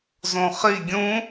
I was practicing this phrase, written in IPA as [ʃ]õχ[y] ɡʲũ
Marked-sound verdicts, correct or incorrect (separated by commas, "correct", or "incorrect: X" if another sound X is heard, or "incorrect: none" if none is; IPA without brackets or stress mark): incorrect: z, incorrect: i